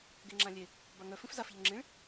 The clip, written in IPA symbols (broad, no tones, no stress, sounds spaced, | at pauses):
ɡ e ŋ͡ǁ ã lʲ e | b a ŋ œ f ĩ f z a f ʎ ɵ ŋ͡ǁ ĩ ɭ